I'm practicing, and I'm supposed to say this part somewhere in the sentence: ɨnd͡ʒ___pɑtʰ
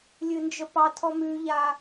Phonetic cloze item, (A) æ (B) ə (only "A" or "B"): B